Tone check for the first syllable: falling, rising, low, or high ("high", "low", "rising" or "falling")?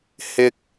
high